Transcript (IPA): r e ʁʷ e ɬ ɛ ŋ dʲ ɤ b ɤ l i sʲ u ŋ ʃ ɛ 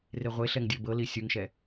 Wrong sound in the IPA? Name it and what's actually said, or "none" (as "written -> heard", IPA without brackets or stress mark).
none